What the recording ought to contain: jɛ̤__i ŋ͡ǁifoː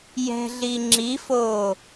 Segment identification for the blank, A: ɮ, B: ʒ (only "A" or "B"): A